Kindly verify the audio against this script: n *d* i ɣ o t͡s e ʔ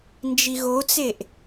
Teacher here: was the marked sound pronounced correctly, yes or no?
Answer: no